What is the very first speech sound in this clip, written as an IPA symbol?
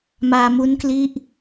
m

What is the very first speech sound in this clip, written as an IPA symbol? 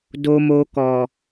d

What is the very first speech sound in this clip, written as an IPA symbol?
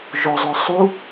ʒ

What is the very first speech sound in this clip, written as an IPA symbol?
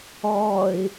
ɔː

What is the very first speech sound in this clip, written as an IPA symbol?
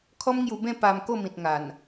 kʰ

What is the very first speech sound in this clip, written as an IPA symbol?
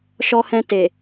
ʃ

